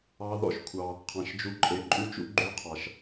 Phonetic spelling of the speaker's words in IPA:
ɑ˦ ð ɔ̰˦ ʃ kʷʰ ɑ˧ | qʰ ɑ̃˨ ʃ d͡ʒ u˧ ǃʼ e˨˦ ǃʼ ʉ˦ t͡ʃ ṵ˦ ɡ͡ǃ ʉ˧ qʰ ɑ˨ ʃ

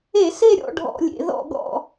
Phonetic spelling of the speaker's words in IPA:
e˧˩˧ s e˦˨ ɾʲ ɔ̰˦˨ ɖʱ ɔ̰˧˩˧ lʲ ḛ˩˧ ð ɔ̰˦˨ ɡ ɔ̰˦˨

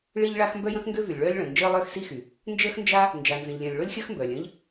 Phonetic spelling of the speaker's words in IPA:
ɭ i˥ ʎ ɭ a˥ x m b œ˥ j ə̃˥ x ŋ ɡ ø˥ v y˩ lʲ ɭ œː˥ lʲ ɭ ə̃ː˩ n d͡ʒ əː˥ lˠ œː˥ x s i˥ x y˩ | n d͡ʒ əː˥ x n d͡ʒ a˥ | n d͡ʒ a˩ n z ə̃˩ ʎ lʲ œ̃˩ lʲ ɭ o˥ lʲ xʲ əː˥ x m b œː˩ lʲ ə̃ː˥ ʎ

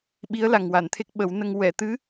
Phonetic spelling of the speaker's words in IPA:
ɓ i˧˥ ə̯ l a˨˩ ŋ w a˨˩˨ n t̪ʰ e˦˥ k̚ ɓ ə˨˩˦ w n ə˧ ŋ w ɛ˨˩˨ t̪ ɨ˧˥

